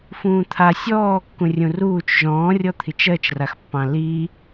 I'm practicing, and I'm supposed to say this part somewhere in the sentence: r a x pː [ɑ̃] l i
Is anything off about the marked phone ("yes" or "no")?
no